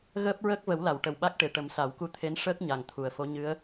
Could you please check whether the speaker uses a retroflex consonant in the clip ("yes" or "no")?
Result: yes